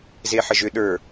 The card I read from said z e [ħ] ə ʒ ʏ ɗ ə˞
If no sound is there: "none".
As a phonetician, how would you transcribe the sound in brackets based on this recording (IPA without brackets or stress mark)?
ħ